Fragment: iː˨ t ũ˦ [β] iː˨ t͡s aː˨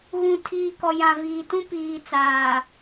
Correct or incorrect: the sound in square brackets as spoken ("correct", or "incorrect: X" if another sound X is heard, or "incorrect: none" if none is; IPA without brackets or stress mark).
incorrect: p